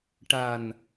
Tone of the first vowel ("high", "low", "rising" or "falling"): low